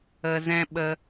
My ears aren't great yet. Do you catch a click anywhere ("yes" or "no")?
no